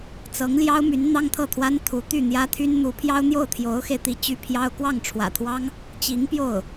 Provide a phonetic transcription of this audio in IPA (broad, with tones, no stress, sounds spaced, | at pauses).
t͡s ɤ˧˥ ŋ l j ɑ˥ ʊ̯ m y˧˥ n n̪ ɑ˥ ŋ t̪ʰ ɤ˥˩ t̪ʰ w a˥ n t̪ʰ u˧˥ t̪ y˥˩ n̪ j ä˥ t̪ʰ y˥ n n̪ u˧˥ pʰ j ɑ˥ ʊ̯ n̪ j o˥˩ ʊ̯ t̪ʰ j o˧˥ ʊ̯ x e˧ ɪ̯ t̪ i˥ t͡ɕ y˥ pʰ j ɑ˥ ʊ̯ k w ɑ˥˩ ŋ ʈ͡ʂʰ w ä̰˨˩ t̪ʰ w ɑ˥ ŋ | t͡ɕ i˧˥ ŋ p j o˥˩ ʊ̯